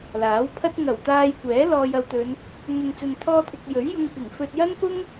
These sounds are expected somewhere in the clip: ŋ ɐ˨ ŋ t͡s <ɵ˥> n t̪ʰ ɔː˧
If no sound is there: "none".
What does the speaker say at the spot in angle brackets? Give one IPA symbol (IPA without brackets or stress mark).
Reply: ɵ˨